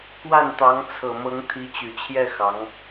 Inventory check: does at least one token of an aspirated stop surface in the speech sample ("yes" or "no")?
yes